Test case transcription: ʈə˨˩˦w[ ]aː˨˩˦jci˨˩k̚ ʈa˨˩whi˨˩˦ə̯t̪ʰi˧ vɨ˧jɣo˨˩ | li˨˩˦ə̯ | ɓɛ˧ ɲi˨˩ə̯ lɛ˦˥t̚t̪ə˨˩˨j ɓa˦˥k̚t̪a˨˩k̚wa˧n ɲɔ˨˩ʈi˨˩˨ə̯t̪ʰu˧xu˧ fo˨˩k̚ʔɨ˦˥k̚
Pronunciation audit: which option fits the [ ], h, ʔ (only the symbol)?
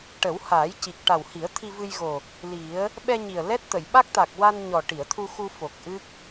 h